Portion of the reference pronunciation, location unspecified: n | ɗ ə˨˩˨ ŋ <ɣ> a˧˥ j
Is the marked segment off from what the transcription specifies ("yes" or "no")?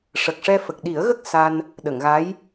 no